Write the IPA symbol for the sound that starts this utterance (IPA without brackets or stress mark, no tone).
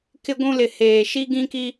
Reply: k